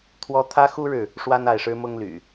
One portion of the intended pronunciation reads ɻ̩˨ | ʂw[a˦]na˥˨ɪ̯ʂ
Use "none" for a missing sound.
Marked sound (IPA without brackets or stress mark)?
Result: a˦